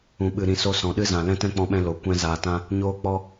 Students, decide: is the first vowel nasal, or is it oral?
nasal